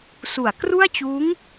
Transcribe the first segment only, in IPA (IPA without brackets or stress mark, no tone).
s